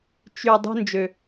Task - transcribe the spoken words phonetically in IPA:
t͡ʃy˩ dˤṳ˨nd͡ʒø˩

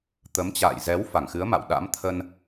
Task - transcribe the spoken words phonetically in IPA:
t̪ə˨˦mt͡ɕa̰ː˧˨j zɛ˨˦w fa˧˩ŋxɨ˨˦ə̯ma̰˧˨w ɗa̰˧˥m t̪ʰə˧n

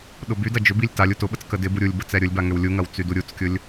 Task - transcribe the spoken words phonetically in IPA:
ɗʊbydɐ d͡ʒʏbilʲ talʲ utʊɓət͡s kədɪbu ɾʲulʲbə t͡sɛɾʲʊlʲba ŋʏwlʲuŋɐw t͡syduɾʲut͡skʲʊlʲ

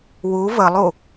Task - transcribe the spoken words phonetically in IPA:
wu vəlˠu

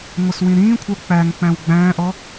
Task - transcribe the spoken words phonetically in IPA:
ŋʷʌswĩɾĩːkʷʰə˞ k͡pæŋk͡pæ̃w ɡ͡bæ̃ːʔɔ

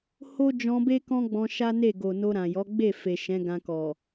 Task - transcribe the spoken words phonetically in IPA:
ho˦d͡ʒɔ̃˧be˦ kɔ̃˦ɡ͡bɔ̃˧ ʃa˦ne˦˨ɡo˨ no˧ɾã˨jɔ˨˦ ɡ͡be˦˨fe˨ ʃɛ̃˨˦ɡã˧kɔ˨

